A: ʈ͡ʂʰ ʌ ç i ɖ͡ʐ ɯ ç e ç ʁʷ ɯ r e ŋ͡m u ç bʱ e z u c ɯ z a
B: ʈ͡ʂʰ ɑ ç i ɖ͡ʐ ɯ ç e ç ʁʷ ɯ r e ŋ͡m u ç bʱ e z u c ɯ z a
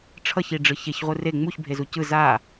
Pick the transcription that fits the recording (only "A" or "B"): A